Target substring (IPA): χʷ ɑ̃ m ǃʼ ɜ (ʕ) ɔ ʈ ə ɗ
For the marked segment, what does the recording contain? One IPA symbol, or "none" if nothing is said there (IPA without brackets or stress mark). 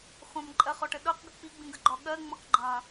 χ